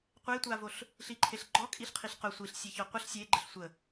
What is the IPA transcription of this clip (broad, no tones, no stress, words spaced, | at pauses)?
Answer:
qʷetʷavoɬ | ɬiǃʰeɬɡ͡ǃɔ kʼiɬqʰiɬqʊ sʷiɬsʲe çɔqʷəɬ sʲeɡ͡ǃəɬ sʷə